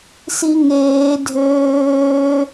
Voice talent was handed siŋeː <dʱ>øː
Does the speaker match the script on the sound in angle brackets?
yes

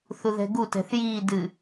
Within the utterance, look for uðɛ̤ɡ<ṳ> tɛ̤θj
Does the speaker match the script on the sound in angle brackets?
no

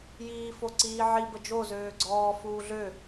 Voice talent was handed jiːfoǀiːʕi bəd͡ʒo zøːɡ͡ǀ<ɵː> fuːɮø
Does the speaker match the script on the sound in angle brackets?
no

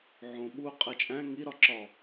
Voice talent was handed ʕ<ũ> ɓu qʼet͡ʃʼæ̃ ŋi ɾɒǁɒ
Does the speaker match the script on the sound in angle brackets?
no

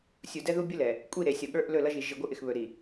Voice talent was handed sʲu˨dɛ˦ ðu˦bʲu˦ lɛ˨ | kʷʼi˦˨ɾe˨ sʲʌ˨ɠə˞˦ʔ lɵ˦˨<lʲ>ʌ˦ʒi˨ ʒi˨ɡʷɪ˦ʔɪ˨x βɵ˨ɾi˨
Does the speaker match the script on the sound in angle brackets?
no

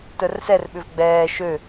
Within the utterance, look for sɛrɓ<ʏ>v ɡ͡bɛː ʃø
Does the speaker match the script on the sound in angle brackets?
yes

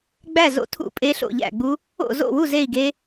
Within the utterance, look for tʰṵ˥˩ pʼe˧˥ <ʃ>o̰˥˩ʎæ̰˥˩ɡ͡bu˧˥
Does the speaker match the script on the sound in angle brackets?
no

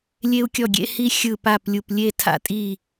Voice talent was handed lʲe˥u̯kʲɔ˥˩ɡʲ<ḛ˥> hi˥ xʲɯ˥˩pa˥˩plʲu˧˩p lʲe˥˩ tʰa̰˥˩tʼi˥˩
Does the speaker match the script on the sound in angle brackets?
yes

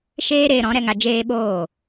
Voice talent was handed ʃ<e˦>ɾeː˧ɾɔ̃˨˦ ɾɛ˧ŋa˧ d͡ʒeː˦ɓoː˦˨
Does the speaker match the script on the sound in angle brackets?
no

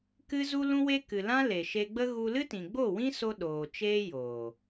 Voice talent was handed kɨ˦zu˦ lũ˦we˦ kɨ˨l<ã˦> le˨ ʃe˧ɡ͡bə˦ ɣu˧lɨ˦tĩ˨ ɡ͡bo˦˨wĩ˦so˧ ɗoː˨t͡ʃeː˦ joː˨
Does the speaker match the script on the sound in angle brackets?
yes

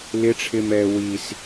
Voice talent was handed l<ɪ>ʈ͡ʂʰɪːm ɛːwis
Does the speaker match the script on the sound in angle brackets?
yes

